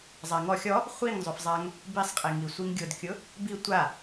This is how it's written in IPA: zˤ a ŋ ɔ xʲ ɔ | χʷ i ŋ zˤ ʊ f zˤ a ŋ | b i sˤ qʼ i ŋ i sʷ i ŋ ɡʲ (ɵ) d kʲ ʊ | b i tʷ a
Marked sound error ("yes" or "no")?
yes